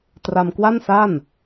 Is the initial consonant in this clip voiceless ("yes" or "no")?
yes